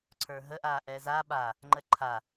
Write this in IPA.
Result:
ǀʰə˞ɦə ʔaːʔɛːzaː ɓa | ŋ͡ǃəǃʰa

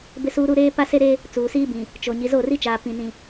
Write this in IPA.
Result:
bɪ˦suː˦ɾu˦ ɾeː˦ pa˦se˦ɾe˦ | t͡suː˨siː˦bĩ˨ | t͡ʃo˨ ɲi˨zo˦˨ri˦t͡ʃaː˨ pĩ˨nĩ˨

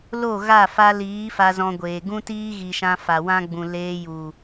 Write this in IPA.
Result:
lo˦˨ɣa˦˨ fa˧liː˨˦ fa˧zɔ̃˧ɡʷeː˨ ɡũ˦tiː˦ɣi˨ʃã˧ fa˨wã˦ɡ͡bũ˨ leː˧ju˨

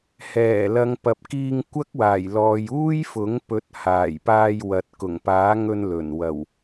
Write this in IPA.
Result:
hɛː˨˩lɐ˨˧ŋ pɐ˨p̚kiː˧ŋkʷɐ˥k̚waː˨˩j lɔː˨juː˥j fʊ˨˥ŋ pɵ˨˥t̚ haː˨˩jpaː˧jwɐ˨t̚ kʊ˨˩ŋpaː˨˥ŋɵ˧n lɵ˨˩n wɐ˨˩w

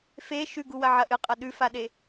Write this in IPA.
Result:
fe ʃʉɡuwɐ ʕɐʔɨ qʼɐɗʉfaɗe

